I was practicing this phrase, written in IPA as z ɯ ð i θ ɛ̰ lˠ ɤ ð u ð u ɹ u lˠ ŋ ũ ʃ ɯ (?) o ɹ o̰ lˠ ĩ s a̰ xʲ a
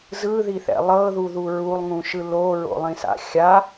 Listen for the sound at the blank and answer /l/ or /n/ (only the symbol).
l